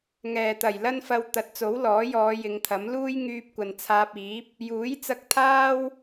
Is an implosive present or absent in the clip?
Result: absent